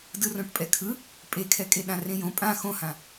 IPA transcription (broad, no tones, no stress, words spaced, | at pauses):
dɯrõʈpʼɛkʰɯ | pʼekʰɛkʼe ɗãrẽjõ pʼã xõhã